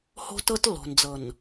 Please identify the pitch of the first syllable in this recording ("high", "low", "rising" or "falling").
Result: high